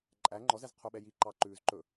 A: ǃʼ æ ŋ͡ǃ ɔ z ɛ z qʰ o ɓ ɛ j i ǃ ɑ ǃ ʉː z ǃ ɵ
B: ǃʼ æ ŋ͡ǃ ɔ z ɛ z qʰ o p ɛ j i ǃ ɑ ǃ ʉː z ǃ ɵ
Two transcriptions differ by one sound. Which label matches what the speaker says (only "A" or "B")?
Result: A